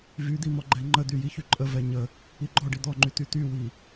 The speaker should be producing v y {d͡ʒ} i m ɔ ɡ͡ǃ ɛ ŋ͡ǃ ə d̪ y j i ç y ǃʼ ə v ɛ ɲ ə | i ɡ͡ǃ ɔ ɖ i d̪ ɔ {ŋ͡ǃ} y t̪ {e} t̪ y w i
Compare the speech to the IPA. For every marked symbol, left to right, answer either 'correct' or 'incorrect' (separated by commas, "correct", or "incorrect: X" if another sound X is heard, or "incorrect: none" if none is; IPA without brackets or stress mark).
incorrect: d̪, correct, incorrect: y